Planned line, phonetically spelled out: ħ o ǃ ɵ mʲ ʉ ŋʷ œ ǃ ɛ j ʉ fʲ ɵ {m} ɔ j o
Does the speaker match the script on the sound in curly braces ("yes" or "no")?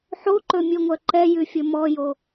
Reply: yes